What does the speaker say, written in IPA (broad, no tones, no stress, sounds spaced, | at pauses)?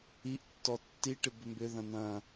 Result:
i ʔ tː ɔ tː i ʈ ɪ b ʏ m b ʏ ð ɐ̃ n̪ ɐ̃